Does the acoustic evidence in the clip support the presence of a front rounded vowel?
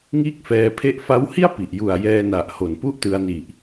no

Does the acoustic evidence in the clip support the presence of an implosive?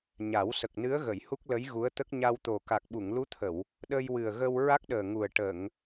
yes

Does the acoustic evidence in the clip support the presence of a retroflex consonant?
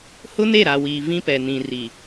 no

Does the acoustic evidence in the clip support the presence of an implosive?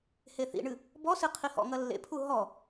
no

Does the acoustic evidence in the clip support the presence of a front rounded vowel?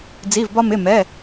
no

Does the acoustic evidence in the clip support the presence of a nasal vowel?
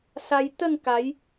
no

